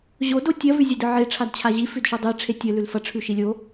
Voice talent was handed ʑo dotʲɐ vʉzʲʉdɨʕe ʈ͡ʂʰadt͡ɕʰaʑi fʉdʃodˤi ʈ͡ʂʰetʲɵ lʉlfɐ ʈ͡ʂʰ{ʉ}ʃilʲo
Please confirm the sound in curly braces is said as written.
yes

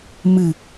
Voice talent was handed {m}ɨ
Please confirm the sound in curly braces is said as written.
yes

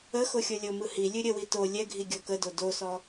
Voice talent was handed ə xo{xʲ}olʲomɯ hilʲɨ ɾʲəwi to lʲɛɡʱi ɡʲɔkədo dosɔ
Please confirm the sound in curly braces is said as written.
yes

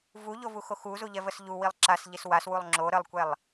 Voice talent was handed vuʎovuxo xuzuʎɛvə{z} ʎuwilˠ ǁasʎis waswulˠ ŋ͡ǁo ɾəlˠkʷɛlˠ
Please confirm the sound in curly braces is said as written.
no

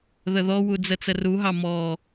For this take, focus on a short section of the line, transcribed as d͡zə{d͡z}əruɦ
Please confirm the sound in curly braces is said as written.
no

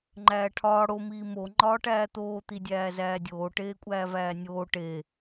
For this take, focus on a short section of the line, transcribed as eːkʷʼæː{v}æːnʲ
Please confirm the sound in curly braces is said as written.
yes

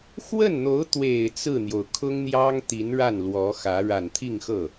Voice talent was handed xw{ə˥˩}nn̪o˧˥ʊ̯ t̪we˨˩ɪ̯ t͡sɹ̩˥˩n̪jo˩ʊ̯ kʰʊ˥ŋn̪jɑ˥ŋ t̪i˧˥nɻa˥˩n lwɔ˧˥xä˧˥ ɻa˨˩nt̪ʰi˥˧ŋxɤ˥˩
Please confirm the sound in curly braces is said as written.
yes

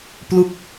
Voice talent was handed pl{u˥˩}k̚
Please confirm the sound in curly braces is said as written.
no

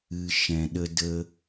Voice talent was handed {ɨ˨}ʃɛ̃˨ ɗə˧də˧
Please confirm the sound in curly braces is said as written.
yes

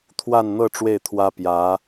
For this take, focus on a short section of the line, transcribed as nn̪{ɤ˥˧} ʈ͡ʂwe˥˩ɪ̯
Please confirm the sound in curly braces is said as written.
yes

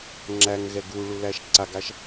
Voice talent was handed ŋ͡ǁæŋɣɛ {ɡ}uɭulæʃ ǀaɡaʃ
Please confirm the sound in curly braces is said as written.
yes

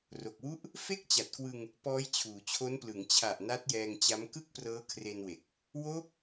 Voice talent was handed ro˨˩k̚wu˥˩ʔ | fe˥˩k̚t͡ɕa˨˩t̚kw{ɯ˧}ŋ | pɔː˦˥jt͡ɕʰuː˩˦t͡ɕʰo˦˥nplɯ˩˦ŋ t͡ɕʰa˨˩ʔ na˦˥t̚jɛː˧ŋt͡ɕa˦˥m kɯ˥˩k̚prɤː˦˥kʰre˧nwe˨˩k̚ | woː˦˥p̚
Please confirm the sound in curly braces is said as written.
yes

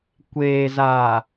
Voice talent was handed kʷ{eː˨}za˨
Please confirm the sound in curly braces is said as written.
yes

